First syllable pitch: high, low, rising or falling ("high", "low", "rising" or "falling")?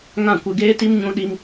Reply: falling